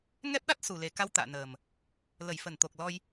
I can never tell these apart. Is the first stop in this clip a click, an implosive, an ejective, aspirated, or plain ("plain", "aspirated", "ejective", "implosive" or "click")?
plain